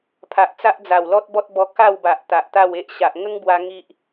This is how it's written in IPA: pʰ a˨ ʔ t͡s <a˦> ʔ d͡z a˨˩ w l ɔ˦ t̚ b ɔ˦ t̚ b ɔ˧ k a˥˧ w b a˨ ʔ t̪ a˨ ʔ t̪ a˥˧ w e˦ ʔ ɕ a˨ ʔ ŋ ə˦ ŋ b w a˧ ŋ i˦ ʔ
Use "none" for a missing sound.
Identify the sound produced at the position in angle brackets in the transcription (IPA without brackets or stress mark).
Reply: a˦